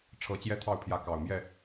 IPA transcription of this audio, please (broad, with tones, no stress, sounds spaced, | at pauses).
ʈ͡ʂʰ ɤ˨˦ t͡ɕ j ɛ˦ t̪ʰ ɑ˥˨ ʊ̯ pʰ j ä˨˦ k ɑ˨˩ ʊ̯ m j ɛ˥˨